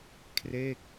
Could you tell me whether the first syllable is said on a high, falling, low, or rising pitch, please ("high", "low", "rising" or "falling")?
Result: falling